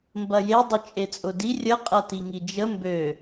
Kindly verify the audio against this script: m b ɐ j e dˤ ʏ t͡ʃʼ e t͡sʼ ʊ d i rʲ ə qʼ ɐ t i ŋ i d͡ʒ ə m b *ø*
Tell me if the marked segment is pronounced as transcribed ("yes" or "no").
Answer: yes